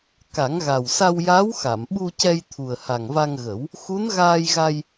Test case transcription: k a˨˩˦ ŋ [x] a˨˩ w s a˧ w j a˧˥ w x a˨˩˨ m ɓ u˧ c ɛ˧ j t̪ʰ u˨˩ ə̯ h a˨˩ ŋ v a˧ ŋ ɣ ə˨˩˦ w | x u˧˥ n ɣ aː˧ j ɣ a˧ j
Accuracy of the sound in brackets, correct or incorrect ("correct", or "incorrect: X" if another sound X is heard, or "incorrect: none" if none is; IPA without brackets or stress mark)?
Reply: incorrect: ɣ